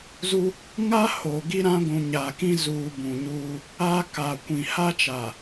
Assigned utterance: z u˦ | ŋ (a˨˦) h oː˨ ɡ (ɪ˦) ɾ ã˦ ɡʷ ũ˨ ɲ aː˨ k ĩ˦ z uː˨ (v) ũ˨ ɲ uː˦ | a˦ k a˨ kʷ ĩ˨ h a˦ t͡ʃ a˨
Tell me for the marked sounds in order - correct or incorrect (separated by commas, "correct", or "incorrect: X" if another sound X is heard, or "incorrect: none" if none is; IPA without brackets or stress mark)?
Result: incorrect: a˦, incorrect: i˦, incorrect: b